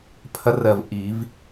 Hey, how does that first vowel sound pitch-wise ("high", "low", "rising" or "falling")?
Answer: rising